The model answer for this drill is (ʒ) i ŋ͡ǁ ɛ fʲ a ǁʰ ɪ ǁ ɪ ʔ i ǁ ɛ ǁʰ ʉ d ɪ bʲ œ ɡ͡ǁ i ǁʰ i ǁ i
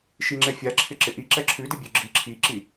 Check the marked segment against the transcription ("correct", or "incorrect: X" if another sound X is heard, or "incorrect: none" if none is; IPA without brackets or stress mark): incorrect: ʃ